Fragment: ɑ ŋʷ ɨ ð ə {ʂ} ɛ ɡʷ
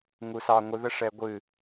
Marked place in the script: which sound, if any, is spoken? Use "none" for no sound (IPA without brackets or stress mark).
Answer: ʂ